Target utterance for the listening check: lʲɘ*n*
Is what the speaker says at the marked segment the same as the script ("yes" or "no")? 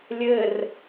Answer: no